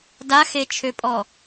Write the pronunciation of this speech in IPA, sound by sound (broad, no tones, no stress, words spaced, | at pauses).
daxet͡ʃʰøpʼɔ